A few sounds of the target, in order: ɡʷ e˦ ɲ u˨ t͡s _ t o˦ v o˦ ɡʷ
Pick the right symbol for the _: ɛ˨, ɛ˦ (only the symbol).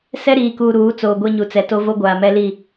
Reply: ɛ˨